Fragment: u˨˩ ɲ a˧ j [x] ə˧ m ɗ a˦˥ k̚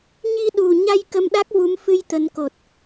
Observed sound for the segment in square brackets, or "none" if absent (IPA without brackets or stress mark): k